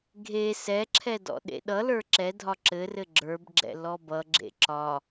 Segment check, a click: present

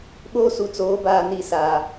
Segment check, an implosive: present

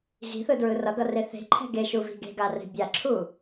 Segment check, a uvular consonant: absent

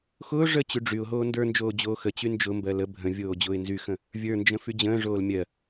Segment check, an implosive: absent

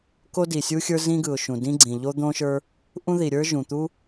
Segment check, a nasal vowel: present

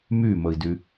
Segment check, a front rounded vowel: present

